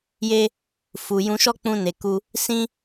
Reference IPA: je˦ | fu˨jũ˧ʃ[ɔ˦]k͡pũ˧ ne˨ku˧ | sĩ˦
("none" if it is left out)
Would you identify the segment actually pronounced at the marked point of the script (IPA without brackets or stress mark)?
ɔ˦